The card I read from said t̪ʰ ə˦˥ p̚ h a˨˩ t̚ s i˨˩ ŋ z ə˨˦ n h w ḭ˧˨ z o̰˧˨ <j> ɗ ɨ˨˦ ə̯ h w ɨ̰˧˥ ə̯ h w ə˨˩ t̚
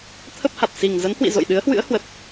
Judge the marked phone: correct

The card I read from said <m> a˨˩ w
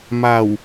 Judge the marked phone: correct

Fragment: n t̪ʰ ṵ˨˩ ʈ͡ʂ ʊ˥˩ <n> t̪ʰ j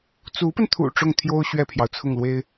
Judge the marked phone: incorrect: ŋ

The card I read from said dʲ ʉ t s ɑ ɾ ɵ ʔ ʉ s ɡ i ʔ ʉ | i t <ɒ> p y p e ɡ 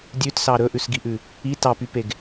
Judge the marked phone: incorrect: ɑ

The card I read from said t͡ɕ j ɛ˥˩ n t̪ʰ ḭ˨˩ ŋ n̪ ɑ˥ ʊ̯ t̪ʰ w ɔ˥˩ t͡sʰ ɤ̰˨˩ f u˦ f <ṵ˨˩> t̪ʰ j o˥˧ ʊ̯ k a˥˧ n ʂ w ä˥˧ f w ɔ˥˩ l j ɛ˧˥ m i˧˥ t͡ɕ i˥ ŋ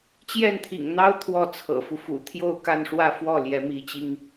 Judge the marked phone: correct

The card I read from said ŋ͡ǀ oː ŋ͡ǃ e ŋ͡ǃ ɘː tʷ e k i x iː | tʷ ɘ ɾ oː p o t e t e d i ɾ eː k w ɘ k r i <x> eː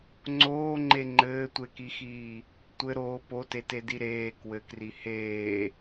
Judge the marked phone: incorrect: h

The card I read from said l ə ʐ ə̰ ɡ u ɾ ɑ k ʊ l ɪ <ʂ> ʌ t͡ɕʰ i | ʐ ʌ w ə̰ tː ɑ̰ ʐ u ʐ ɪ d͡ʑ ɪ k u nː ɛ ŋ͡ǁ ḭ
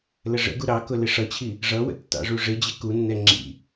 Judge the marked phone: correct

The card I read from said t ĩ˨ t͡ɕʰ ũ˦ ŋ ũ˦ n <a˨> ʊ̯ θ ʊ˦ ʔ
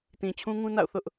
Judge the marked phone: incorrect: a̰˦˨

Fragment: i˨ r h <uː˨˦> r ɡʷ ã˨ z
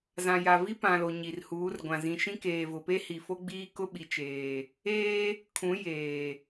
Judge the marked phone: correct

